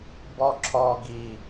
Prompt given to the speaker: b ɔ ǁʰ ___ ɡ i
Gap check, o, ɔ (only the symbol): ɔ